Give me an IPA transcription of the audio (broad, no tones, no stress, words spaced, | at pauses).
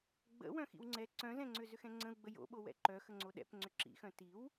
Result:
ɡ͡bə̰ wœ̃xḭwŋ͡ǀɛ ǀœ̃zɛ̃ŋ͡ǀʏ zʏxɛ̃ŋ͡ǀə̃u̯ɡ͡bə jo̰ɓowɛ̰ ǃœxəŋ͡ǀo ɗɛ̰p ŋ͡ǀʏǁḭxœ̃ tiw